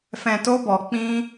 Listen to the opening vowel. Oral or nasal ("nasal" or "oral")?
nasal